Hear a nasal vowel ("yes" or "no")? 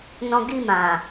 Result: yes